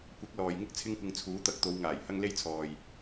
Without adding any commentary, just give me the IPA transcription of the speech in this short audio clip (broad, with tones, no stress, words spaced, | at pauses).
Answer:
kʷɐ˨˥k̚ lɔː˨jŋɪ˥k̚t͡sʰɪ˥ŋkʷɪ˧ŋ t͡sʰuː˨˥t̪ɐ˧k̚t̪o˨˧w ŋaː˨˩j hɐ˥ŋle˥jt͡sʰɔː˨j